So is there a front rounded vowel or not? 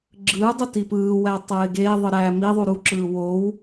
no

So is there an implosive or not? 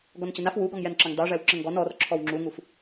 no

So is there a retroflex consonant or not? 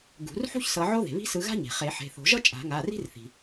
no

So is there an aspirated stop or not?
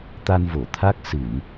yes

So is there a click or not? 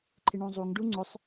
yes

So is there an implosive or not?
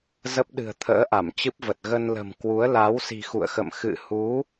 yes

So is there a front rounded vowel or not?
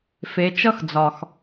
no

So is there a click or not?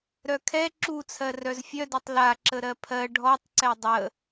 yes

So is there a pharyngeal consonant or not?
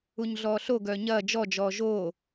no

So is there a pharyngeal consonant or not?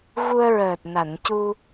no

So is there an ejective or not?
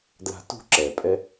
yes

